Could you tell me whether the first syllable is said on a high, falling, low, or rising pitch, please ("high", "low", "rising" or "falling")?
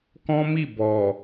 high